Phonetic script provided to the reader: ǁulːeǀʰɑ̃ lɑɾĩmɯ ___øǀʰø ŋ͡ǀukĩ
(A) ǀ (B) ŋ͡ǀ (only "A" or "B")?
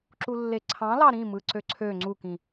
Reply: A